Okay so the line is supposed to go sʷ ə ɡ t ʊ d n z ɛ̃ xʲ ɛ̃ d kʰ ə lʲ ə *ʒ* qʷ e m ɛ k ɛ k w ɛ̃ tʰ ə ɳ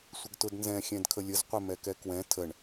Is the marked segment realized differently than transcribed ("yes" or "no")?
yes